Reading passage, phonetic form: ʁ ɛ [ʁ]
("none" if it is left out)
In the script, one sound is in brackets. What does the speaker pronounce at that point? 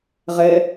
none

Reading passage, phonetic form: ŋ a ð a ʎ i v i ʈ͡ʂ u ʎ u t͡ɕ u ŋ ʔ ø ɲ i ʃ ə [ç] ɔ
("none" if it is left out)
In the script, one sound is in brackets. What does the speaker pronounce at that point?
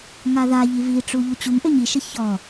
ç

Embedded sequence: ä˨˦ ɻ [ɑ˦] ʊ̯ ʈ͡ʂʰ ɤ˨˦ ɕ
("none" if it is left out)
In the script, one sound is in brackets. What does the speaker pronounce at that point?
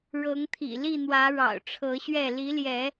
ɑ̰˨˩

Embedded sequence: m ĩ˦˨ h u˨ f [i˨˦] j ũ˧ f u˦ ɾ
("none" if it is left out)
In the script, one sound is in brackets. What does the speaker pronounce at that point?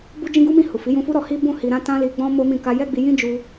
i˨˦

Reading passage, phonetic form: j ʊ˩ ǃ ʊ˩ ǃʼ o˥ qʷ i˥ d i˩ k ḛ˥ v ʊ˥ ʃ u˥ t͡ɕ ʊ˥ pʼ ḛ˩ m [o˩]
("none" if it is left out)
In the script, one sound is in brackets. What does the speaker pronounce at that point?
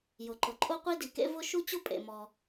ɔ˩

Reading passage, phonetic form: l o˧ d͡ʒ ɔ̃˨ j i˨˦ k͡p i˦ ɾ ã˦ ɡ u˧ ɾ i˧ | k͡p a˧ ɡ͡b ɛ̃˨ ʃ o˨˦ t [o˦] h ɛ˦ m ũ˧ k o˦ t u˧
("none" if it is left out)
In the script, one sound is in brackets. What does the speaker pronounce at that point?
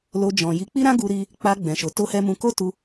o˦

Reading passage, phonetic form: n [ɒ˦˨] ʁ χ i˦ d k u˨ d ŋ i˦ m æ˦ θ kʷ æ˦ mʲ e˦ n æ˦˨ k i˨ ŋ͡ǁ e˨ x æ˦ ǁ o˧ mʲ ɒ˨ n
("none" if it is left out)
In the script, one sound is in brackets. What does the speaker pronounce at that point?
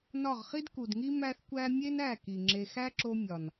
ɒ˦˨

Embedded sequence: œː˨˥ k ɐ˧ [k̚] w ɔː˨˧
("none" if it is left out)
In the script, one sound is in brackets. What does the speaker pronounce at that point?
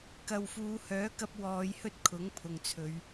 p̚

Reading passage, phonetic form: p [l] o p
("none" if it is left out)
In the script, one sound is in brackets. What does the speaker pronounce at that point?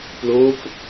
l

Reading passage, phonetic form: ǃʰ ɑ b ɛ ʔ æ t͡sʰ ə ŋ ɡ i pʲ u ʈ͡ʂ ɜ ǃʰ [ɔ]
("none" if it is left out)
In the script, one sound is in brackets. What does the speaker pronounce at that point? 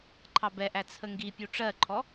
ɔ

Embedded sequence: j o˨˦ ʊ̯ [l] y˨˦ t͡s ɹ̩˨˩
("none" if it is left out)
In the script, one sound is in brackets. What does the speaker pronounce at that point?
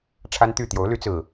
l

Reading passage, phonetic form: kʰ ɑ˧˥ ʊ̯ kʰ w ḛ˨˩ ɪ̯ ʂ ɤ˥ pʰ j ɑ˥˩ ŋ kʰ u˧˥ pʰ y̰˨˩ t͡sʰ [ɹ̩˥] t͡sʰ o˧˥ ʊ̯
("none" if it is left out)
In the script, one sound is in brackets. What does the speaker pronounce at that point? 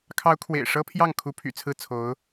ɹ̩˥˩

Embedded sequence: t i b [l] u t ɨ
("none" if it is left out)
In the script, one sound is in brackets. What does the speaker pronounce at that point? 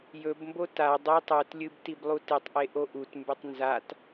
lˠ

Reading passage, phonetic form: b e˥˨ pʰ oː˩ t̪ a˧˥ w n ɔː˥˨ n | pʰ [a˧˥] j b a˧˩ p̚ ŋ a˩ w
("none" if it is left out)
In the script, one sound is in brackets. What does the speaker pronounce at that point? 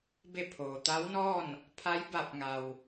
a˧˥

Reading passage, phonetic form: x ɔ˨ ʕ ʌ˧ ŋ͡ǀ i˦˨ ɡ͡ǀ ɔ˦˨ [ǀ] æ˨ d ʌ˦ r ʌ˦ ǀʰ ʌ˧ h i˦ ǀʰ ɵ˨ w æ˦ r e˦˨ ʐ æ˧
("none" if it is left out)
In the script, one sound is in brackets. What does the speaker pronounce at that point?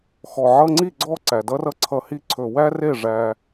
ǀ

